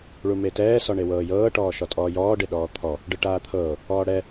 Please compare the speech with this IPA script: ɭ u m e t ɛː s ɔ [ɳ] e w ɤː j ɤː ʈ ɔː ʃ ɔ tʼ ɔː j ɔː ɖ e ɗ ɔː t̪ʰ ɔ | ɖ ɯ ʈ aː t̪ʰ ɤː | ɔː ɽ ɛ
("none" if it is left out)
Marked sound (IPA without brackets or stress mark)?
ɳ